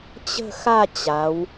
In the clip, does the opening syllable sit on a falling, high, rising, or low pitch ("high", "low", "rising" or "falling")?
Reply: falling